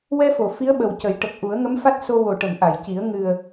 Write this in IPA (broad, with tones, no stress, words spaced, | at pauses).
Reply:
wɛ˧fo˨˩˨ fi˧˥ə̯ɓə˨˩w cə˨˩˦j ʈə˨˩k̚ʔu˨˩˦ə̯ ŋə˧˥mfa˦˥t̚so˧ wo˨˩ʈə˨˩˨m ʔa˨˩˨jci˨˩˦ə̯ ŋɨ˨˩ə̯